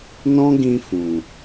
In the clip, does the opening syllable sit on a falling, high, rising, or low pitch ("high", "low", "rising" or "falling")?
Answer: high